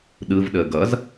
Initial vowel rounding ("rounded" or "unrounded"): unrounded